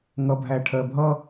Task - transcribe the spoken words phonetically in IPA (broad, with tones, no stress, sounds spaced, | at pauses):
ŋ ʌ˨ bʱ æ˨ ʈʰ ɜ˨ bʱ ʌ˦